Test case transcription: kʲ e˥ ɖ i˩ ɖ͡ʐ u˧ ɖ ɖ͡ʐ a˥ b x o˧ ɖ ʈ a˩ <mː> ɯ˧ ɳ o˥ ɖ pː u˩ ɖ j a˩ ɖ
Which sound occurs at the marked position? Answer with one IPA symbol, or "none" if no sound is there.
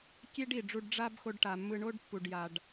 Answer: mː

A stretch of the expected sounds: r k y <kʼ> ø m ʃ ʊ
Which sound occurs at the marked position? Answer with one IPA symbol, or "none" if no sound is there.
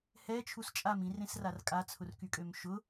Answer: kʼ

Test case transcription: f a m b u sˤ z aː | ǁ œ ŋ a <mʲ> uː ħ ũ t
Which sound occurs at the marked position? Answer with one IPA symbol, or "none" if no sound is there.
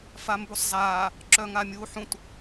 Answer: mʲ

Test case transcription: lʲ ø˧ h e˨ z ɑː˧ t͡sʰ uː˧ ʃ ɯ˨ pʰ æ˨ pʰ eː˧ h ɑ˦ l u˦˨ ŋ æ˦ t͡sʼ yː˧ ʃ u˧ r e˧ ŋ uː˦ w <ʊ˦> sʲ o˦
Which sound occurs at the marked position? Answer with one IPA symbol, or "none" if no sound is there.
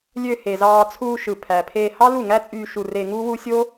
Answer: u˦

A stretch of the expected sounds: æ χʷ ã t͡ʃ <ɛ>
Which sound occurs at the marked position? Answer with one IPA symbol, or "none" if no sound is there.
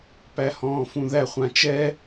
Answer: ɛ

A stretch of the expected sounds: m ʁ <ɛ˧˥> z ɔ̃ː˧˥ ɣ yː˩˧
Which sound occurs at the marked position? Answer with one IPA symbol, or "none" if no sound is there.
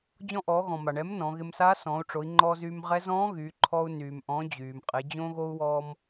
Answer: ɛ˧˥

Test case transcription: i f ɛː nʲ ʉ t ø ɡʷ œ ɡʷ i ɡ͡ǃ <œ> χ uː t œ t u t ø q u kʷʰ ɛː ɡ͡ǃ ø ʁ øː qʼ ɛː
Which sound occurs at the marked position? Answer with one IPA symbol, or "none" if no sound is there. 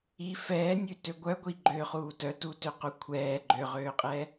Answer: ø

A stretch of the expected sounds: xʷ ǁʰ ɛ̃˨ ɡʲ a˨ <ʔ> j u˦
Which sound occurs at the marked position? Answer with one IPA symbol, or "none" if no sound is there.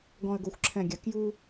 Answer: k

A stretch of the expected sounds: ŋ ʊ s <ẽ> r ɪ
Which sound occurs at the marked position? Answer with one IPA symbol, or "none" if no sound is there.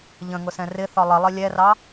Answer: ɛ̃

